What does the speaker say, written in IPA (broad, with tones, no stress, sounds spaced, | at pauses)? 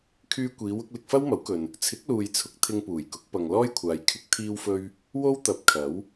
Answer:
kʰ yː˧ kʷ iː˨˧ w ʊ˧ k̚ l ɪ˧ k̚ f ɐ˥ w m ɐ˨˥ w k ɵ˨ n | t͡sʰ ɪ˨˥ k̚ l uː˨ j t͡sʰ ʊ˨˥ k̚ t̪ʰ ɪ˧ ŋ p uː˨˩ j k ʊ˨˥ k̚ p ɐ˨ ŋ l ɔː˥ j kʷʰ aː˨˧ j kʰ ɪ˨ k̚ t̪ʰ iː˧ w f ɵ˧ ɥ | w o˥ w t̪ ɐ˨˥ p̚ kʰ ɐ˨˥ w